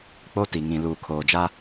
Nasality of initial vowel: oral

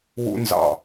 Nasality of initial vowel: oral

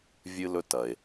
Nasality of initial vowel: oral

